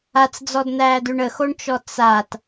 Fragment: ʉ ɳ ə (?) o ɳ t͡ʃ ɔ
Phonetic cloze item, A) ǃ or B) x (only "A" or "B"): B